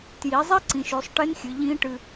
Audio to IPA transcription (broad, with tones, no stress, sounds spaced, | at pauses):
t j i˩˧ zˤ e˦˥ ǀ ĩ˩˧ ʃ ʉ˩˧ sˤ ʈ e˦˥ n xʲ ɨ˩˧ ʎ ĩ˦˥ ʈ ɨ˧